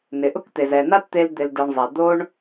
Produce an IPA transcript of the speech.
nɪ˨ʔʊ˦kt̪e˨z ɛ˨na˦tt̪e˧l d̪ɪ˧lde˧ɳzˤɛ˨ d̪o˦ɳ

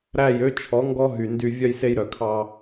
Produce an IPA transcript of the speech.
ɾæ˦˨jø˦ t͡ʃʰɔ˨˦ŋɡɔ˦ɦy˨ndy˧ vʲœ˧jse˧jɾœ˨kʰɑ˧

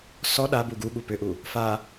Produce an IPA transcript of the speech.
sɔ ɗa buɡuɠu pʏʔu | fa

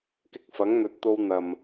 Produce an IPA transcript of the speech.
kɪ˥k̚ fɐ˨˥ŋn̪ɵ˨˥t̚t̪o˧w n̪ɐ˨m

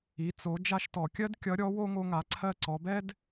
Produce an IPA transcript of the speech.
i˩˧t͡so˩˧ d͡ʒa˧ʃtɔ˩kʲɜ˥d kʲʌ˧˥ɾʲɔ˧˥wo˥ ŋo˧ŋa˩˧ ǀʰɜ˧ ǀɔ˩˧bɛ˥d

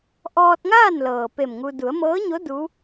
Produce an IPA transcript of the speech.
ʔɔː˧t̚ŋaː˥˨nlɤː˩ pe˧˩mŋu˧ du˩˧ə̯mɤː˧˥ɲo˧˥ du˧˥

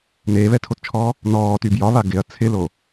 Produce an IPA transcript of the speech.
neːβɛtʰott͡ʃʰɔː | nɔːty bjɒβa ɡɪɐ̯ t͡sʰɪlo

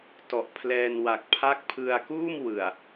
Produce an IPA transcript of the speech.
tɔ˨˩ʔpʰlɛː˧nwa˨˩k̚ pʰa˦˥k̚pʰɯ˧a̯kuː˥˩m wɯ˨˩a̯

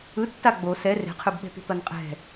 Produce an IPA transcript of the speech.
ɯtːa ɡ͡bo sɛ re̤qʰɯbɓɛ̤t̪i̤ t̪ʌnqʼɛ̤

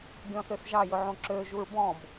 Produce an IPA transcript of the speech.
ɡʲɔ̃søsʒɑ jɵʕõǁø ʒuɹbɔ̃b

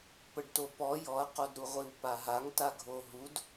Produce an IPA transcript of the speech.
pəɖtopɔ jɔɐ̯qodɾuʁʷiw paɦaŋta ɡʱoɦud

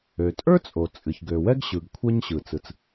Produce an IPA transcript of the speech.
ø˩tʼə˞˥t͡sʼo˩ t͡sʼɨ˩çɡø˩wɛ˥ɡ ɕɯ˩ɡ kʷʰɛ˥ɲɕɯ˩ t͡sɯ˩t͡s

